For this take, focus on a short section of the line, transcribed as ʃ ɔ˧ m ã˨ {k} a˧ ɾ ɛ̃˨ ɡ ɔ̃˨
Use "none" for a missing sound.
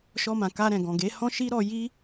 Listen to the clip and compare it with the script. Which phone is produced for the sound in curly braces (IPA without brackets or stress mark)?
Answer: k